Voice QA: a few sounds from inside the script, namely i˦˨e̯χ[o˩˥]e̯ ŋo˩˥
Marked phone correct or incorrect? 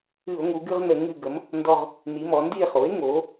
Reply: correct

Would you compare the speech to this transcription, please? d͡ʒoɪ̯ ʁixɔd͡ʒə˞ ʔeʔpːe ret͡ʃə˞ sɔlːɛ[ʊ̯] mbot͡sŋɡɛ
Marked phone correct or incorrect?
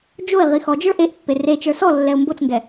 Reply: correct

